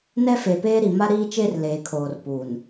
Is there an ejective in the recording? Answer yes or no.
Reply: no